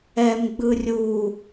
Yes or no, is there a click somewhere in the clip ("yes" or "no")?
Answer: no